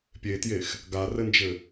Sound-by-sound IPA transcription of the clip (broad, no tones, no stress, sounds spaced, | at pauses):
pʲ e t j e x | ɡ a r ɘ n d͡ʒ ɘ